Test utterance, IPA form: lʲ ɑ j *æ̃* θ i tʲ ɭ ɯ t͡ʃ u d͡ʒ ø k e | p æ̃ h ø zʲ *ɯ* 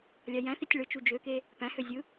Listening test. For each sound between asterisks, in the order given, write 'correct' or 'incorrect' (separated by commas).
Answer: correct, correct